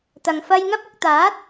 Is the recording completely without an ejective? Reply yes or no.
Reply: yes